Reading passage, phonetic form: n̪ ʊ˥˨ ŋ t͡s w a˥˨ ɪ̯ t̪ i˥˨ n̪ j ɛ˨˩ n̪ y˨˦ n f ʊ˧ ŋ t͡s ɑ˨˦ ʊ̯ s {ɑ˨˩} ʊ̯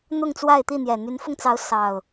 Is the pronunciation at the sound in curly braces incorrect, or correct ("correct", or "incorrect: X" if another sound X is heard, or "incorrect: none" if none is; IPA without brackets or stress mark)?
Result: correct